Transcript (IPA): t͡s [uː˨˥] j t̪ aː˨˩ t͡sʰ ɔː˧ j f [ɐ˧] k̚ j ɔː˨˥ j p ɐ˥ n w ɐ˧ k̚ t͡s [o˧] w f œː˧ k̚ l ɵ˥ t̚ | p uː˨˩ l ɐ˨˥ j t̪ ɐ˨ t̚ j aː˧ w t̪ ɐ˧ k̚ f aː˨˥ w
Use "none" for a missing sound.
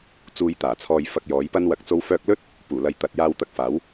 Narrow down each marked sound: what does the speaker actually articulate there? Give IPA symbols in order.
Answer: uː˧, ɐ˧, o˥

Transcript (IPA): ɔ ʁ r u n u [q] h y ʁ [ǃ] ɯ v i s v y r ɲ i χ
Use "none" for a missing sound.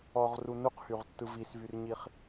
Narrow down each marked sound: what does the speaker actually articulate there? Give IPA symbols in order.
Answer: q, tː

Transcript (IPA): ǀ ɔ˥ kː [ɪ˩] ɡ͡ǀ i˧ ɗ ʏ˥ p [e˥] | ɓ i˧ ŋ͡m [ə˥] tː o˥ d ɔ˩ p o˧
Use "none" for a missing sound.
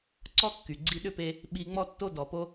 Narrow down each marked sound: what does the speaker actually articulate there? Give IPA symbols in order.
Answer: y˩, e˧, ɔ˥

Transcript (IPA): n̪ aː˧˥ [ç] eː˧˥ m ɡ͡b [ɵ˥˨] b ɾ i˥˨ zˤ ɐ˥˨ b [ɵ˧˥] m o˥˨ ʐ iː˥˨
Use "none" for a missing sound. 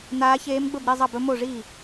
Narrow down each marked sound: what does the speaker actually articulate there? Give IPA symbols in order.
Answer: ç, ɵ˥˨, ɵ˧˥

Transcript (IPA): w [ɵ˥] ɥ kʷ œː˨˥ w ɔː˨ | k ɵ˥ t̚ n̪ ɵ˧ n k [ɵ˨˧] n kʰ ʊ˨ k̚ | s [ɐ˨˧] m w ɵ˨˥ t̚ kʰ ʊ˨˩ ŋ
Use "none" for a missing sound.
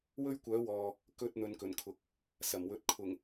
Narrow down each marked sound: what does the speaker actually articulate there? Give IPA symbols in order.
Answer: ɵ˥, ɵ˨˩, ɐ˨˩

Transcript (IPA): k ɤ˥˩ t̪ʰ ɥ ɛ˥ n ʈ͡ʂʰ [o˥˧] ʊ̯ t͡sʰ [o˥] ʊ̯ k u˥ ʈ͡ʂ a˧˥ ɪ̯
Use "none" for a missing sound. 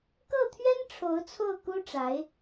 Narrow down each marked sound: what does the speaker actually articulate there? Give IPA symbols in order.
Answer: o˧˥, o˥˩

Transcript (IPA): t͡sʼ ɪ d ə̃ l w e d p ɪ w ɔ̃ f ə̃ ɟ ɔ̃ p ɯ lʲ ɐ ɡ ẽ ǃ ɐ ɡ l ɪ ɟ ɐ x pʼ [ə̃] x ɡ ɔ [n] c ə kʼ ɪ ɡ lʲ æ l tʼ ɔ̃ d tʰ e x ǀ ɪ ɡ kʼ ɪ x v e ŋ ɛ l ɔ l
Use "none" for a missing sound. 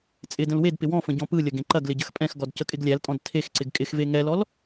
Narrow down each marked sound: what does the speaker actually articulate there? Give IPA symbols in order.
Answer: ɛ̃, d

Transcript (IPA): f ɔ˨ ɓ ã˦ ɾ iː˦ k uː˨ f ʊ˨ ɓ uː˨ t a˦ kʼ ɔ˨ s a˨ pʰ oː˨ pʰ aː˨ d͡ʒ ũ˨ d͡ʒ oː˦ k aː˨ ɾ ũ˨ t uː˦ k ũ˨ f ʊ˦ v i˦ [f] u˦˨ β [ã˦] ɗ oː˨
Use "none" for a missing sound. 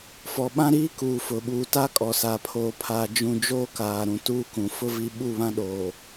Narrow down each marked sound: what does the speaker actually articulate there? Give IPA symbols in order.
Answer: ɓ, ã˦

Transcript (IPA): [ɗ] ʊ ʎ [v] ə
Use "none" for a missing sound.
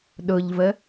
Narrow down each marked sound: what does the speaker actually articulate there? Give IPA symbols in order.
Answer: ɗ, v

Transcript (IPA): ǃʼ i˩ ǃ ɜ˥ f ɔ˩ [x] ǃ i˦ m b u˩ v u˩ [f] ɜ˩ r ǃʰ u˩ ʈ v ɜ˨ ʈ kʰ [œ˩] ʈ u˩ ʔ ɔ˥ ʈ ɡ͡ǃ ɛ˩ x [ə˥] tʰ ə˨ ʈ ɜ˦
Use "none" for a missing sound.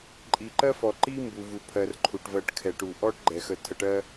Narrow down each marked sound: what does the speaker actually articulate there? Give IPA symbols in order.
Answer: none, pʰ, ɛ˩, ə˨

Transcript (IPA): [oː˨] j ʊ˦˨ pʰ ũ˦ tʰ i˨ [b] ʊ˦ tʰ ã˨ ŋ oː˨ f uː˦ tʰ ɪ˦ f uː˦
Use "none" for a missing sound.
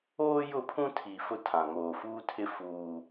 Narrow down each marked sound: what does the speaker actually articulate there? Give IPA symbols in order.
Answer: oː˦, f

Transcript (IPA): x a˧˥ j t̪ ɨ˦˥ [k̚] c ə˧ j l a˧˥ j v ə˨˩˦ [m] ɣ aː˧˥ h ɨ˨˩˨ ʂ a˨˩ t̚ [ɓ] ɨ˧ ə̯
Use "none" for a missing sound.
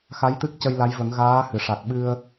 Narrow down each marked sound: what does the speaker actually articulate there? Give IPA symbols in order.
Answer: k̚, ŋ, ɓ

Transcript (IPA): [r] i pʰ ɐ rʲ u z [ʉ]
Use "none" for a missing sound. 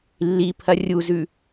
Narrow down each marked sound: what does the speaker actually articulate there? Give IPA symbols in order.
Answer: lː, ʉ

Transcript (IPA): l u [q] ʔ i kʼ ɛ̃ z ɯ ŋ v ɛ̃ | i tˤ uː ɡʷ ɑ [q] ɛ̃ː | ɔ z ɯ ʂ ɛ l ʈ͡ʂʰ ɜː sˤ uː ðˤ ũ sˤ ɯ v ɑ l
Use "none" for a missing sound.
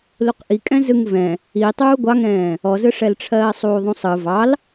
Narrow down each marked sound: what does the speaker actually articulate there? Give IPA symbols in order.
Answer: q, ŋ

